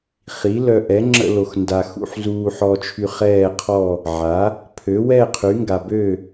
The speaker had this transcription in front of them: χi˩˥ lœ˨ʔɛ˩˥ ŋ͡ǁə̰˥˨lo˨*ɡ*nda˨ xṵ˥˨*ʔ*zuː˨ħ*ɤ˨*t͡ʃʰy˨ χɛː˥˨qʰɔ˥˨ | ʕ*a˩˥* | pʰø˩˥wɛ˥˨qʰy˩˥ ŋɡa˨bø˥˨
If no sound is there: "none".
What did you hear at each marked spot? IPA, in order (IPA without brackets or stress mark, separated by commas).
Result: x, ħ, ɔ˨, a˩˥